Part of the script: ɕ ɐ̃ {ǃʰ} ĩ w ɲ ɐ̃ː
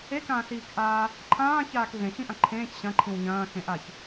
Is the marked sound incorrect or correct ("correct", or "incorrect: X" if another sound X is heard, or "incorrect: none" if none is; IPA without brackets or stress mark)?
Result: correct